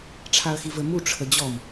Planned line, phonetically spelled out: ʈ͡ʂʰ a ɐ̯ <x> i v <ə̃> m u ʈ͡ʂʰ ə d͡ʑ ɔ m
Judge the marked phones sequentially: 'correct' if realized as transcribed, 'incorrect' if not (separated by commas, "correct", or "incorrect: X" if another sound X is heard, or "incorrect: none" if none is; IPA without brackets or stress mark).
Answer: correct, incorrect: ə